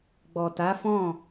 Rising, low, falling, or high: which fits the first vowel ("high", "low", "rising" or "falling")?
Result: low